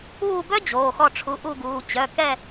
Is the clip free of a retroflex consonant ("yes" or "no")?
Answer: no